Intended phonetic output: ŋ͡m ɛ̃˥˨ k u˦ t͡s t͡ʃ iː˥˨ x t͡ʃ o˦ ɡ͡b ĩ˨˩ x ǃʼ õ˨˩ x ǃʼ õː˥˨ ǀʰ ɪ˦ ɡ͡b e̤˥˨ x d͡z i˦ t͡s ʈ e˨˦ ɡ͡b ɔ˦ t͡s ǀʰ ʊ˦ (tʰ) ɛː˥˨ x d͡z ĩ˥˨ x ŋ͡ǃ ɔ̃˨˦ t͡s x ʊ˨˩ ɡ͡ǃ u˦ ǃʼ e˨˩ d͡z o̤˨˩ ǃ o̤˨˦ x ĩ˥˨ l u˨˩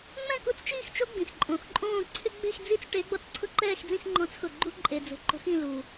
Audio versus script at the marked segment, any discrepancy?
yes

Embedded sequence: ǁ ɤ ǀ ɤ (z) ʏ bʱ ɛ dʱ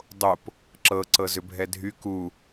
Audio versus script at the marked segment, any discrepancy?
no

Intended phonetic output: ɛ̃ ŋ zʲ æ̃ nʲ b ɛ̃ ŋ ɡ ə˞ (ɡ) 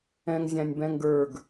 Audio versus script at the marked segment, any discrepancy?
no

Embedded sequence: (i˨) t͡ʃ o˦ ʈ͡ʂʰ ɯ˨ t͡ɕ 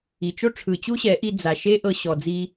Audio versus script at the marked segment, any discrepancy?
no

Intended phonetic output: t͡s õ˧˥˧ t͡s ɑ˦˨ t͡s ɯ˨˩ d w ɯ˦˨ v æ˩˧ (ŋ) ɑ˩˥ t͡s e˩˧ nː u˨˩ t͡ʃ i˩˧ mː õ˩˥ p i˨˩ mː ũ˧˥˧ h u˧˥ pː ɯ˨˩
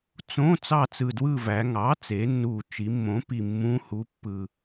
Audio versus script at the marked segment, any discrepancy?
no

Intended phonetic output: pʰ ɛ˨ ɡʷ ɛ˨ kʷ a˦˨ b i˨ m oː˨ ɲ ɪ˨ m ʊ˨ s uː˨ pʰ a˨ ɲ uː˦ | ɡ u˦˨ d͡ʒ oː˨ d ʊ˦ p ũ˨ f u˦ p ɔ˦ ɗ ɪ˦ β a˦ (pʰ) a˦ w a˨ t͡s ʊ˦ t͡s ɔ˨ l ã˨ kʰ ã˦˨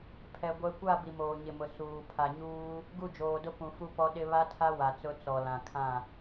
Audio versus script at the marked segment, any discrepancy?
yes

